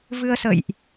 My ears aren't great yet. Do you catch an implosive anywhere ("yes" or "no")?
no